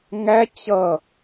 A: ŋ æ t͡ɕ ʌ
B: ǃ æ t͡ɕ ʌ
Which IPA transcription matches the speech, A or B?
A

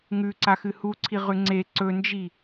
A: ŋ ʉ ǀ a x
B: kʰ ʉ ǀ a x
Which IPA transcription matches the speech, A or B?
A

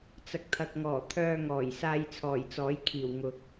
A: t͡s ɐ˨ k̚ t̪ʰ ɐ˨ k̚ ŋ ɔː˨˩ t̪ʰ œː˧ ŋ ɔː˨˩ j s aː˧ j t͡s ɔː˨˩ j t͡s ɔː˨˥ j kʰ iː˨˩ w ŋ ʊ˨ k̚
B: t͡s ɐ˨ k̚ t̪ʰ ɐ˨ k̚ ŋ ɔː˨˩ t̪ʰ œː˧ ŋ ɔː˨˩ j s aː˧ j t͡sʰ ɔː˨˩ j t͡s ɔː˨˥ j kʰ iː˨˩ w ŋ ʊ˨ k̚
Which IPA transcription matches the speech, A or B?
B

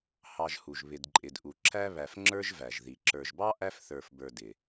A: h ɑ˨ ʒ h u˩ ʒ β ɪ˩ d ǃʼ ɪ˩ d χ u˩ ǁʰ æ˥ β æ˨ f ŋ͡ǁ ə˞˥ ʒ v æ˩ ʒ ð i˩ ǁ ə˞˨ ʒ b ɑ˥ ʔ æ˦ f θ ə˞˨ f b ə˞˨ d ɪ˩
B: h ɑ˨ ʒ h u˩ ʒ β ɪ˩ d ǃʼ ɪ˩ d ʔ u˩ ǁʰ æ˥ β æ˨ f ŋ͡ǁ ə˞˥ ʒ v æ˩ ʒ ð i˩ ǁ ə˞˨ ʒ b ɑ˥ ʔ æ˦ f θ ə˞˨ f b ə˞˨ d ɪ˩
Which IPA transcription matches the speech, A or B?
B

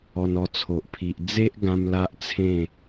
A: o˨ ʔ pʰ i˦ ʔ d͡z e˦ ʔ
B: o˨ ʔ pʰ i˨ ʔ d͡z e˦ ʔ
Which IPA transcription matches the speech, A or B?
B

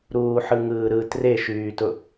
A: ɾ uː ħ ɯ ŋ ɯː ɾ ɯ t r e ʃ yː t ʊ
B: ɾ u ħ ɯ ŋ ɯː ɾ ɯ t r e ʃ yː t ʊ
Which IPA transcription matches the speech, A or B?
A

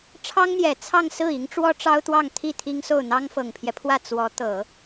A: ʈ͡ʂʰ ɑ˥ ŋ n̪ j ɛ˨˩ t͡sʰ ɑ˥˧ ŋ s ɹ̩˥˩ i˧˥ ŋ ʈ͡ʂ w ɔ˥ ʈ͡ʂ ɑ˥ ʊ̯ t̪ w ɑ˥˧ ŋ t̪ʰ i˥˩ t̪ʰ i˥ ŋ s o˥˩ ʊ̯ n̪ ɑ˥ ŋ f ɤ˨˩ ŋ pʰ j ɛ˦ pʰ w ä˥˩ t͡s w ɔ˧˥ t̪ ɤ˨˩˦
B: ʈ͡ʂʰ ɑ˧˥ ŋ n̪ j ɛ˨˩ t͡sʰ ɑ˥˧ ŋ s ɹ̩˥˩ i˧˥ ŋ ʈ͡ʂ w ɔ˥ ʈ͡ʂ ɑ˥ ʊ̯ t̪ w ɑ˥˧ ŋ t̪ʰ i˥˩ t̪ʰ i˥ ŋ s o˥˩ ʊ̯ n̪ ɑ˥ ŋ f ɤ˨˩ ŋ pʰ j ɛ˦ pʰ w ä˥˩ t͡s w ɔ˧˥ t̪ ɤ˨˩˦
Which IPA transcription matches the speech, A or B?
A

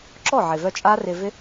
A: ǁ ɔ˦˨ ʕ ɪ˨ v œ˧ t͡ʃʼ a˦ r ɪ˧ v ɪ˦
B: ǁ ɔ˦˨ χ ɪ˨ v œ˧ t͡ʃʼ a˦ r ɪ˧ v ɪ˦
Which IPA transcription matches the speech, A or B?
A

